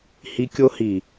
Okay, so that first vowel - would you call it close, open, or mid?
close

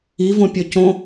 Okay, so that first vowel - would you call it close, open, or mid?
close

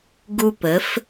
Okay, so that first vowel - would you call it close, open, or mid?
close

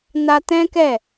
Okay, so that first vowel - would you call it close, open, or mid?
open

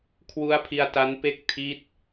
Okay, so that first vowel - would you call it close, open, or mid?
close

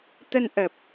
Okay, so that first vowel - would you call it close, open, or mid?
mid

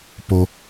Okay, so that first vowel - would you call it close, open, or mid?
mid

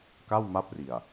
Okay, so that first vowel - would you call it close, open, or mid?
open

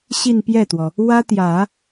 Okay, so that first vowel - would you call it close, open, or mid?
close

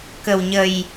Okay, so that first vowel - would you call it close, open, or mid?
mid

